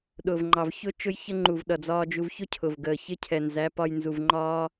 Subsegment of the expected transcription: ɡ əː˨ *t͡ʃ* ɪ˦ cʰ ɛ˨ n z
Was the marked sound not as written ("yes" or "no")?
yes